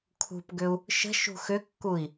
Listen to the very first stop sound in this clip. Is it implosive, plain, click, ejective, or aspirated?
aspirated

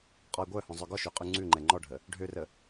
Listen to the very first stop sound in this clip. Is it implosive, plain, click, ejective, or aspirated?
ejective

